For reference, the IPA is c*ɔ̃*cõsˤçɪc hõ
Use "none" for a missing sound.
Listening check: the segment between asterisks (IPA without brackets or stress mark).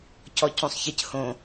ɔ